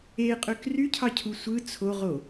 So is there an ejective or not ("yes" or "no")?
yes